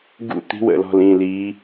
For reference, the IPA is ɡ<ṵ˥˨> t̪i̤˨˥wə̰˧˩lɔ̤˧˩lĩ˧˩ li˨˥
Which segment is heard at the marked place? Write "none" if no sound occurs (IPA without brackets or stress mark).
ṵ˥˨